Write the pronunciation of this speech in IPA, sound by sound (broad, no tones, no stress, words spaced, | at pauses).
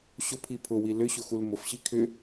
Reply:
ɕʊpʰi pʰʊwi lʏɕʊ xulmʊfɕi kʰʏ